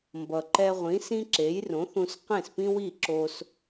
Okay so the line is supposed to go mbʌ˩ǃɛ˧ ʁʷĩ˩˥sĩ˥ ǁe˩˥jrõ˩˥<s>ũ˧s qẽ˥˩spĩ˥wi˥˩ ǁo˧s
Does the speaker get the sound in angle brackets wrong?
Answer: yes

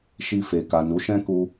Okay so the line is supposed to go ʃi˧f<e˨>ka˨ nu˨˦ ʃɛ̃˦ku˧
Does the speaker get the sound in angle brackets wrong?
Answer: no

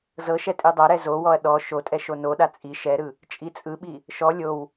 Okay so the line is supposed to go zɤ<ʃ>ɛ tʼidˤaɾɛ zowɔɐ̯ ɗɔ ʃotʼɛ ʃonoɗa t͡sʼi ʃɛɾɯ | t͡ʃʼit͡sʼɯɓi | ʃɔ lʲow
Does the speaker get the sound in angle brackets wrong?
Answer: no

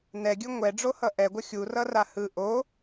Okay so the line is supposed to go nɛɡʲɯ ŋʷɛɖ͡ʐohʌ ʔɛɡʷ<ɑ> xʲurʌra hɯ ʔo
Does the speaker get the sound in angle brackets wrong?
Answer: yes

